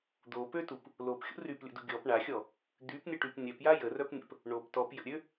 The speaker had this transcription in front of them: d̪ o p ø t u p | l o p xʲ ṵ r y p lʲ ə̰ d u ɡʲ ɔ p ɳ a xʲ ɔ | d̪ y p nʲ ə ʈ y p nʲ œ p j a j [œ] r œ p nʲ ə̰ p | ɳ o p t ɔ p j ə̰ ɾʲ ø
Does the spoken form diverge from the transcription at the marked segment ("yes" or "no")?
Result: yes